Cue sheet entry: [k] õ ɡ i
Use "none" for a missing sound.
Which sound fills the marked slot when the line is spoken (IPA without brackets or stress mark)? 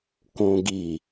k